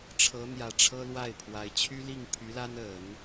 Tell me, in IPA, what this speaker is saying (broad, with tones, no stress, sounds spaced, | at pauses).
ʈ͡ʂʰ ɤ˧˥ n̪ j ä˨˩ ʈ͡ʂʰ ɤ˥ l w a˥˩ ɪ̯ pʰ w a˧˥ ɪ̯ t͡ɕʰ y˥ l i˥˩ ŋ pʰ y˧˥ l a˥ n ə˨˩˦ n